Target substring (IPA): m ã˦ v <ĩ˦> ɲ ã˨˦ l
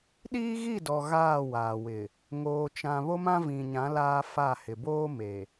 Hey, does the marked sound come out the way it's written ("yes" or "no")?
no